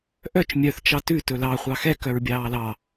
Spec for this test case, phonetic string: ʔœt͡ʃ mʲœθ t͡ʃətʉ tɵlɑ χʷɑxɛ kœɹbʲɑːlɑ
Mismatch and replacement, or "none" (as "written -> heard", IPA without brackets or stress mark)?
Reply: ə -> ɑ